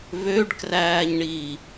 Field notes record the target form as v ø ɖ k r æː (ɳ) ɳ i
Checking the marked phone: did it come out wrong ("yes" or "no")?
yes